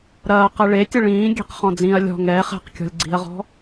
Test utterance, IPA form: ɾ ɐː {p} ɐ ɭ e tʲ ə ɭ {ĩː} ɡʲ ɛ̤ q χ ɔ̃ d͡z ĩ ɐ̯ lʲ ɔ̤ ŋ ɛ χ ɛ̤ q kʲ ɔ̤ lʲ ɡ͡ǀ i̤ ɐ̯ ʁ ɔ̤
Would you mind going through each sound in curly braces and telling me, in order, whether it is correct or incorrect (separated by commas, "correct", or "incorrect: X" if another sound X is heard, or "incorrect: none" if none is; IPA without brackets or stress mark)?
incorrect: q, correct